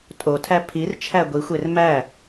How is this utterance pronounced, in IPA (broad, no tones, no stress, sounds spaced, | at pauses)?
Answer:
tʼ o tʰ æ pʰ i r t͡ʃʰ æ ɡʷ i xʷ e r m æ